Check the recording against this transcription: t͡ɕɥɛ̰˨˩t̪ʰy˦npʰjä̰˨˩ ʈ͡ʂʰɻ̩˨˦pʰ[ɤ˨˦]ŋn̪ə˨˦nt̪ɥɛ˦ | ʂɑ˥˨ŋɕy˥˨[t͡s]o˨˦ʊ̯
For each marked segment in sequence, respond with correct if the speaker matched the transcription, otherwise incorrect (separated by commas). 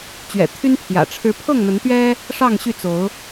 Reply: incorrect, correct